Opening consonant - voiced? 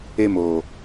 yes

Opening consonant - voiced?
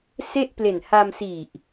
no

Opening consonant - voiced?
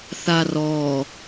no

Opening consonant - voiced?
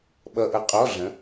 yes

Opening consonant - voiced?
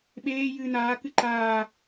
yes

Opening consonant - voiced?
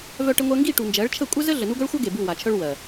yes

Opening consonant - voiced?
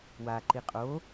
yes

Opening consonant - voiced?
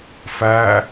no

